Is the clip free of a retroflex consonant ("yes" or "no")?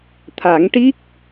no